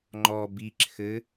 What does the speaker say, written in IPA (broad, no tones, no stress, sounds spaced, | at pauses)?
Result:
ŋ͡ǃ ɔ b i ǁʰ ɘ